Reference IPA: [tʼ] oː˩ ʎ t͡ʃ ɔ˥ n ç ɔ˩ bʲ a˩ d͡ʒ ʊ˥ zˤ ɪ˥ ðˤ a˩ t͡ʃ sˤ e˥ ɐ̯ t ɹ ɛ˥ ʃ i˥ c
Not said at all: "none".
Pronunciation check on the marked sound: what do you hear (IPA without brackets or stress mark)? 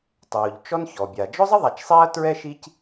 tˤ